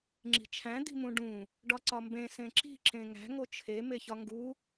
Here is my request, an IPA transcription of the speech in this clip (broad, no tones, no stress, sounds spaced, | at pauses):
ŋ͡ǁ i̤ t͡ʃʰ æ̃ d̪ i̤ m ũ ɖ ũ | ɖ ɒ ǀ ɒ m b ẽ s ẽ ǁ i̤ ǁ ẽ ŋ æ̤ ŋ o t͡ʃʰ e m e ç ɒ ŋ ɡ u